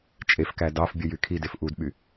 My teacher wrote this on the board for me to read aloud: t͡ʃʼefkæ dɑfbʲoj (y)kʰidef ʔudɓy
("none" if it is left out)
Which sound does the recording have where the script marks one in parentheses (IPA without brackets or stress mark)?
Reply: y